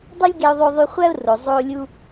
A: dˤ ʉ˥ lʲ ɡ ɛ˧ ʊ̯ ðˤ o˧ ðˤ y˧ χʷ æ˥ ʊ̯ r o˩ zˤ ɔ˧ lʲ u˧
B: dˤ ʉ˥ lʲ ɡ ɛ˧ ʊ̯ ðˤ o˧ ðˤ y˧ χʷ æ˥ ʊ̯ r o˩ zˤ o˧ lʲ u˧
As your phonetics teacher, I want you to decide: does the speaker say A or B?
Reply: B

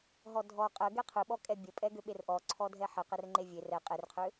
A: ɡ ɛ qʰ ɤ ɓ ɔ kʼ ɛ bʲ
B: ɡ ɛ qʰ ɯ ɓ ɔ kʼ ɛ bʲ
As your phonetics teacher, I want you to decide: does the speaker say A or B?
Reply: B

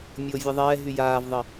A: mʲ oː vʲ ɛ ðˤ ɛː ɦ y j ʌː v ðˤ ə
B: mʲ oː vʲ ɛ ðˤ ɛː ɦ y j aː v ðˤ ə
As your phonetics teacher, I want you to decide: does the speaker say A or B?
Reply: B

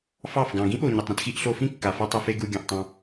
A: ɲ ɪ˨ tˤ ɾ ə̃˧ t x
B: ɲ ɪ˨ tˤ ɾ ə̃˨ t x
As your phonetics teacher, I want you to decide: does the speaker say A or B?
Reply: A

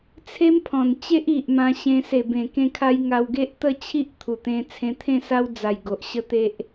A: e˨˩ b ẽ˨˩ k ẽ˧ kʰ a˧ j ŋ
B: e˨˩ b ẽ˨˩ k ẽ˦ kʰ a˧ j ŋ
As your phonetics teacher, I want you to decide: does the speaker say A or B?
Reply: A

